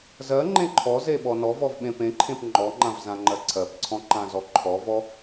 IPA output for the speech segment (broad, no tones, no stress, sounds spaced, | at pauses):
z ɜ ŋ͡ǃ ẽ ǃʰ ɔ z e ɓ ɔ n ɔ v ɔ v ɓ ẽ p ẽ ǃʰ ẽ p ŋ͡ǃ ɔ ŋ͡ǃ ã v z ã ŋ͡ǃ ɜ ǀʰ ɜ p ǀʰ ɔ̃ ǃ ã z ɔ ǃʰ ɔ v ɔ